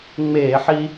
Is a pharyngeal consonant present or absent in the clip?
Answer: present